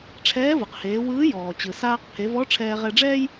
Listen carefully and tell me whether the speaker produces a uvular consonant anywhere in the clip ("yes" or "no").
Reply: yes